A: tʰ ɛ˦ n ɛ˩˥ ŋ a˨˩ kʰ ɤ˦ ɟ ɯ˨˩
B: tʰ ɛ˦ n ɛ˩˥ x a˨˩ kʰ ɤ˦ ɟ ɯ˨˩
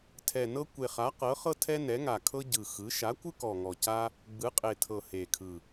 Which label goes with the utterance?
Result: A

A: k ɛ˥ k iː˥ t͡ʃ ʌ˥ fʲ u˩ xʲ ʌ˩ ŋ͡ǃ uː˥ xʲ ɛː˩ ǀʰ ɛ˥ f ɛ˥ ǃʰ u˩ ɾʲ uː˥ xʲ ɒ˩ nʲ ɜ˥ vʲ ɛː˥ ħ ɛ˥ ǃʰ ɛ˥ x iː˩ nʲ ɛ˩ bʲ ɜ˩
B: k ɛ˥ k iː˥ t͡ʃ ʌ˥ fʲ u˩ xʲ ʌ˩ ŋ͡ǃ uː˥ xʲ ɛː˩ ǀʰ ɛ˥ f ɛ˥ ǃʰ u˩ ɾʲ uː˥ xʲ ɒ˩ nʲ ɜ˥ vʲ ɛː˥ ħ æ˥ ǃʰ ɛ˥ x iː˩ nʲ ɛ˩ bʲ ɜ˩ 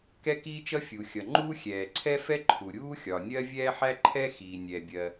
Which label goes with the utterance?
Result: B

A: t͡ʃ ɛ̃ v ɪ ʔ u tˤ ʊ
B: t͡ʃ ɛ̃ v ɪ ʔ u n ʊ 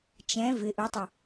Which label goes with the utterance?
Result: A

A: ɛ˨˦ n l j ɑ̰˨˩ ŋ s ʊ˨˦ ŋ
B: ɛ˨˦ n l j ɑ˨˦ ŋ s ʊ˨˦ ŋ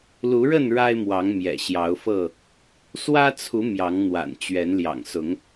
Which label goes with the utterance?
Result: A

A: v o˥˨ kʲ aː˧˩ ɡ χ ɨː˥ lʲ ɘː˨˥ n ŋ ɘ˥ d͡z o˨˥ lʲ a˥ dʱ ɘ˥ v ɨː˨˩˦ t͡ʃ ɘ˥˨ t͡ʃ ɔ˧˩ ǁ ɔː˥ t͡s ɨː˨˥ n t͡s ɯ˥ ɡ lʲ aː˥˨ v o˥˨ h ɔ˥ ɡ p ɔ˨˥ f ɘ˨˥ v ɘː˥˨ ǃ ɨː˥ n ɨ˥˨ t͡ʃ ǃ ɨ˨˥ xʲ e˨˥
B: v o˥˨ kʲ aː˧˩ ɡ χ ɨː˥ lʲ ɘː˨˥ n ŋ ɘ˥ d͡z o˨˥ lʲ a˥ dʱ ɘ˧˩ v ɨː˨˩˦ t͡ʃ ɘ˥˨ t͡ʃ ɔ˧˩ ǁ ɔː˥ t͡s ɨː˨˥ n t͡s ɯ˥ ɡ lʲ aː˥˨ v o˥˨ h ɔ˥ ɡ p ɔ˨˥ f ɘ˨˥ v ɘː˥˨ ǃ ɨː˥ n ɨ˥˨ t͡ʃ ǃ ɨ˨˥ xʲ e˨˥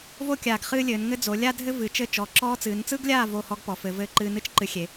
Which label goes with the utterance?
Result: A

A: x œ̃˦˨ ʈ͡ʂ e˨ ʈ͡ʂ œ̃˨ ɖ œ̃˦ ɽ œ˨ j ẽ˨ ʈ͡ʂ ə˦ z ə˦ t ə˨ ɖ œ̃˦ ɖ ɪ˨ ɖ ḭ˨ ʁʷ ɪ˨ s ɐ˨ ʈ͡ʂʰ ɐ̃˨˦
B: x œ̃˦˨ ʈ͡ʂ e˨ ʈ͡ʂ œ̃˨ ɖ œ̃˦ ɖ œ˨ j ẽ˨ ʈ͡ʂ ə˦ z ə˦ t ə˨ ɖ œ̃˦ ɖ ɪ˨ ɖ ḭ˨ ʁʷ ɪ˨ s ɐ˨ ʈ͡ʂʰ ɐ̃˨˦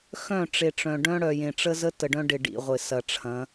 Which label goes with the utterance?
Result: A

